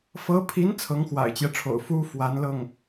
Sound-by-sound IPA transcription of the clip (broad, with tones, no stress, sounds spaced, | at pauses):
f ɤ˧˥ pʰ i˧˥ n t͡sʰ ɤ˧˥ ŋ x w a̰˨˩ ɪ̯ t͡ɕ j ɛ˦ ʈ͡ʂʰ o̰˨˩ ʊ̯ f u˥ f w a˧˥ n l ɤ˥˩ ŋ